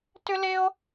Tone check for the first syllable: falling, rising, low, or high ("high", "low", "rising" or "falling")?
high